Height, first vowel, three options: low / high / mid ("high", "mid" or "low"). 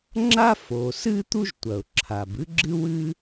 low